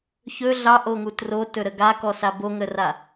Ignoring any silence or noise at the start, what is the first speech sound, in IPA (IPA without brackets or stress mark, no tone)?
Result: ç